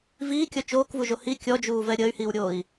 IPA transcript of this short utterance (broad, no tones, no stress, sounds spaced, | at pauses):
v iː kʲ ɔ t͡ʃ oː k v u ʒ o h i kʲ ɔ d͡ʒ uː v ɛ ɾʲ əː y̯ h iː w ɾʲ oː i̯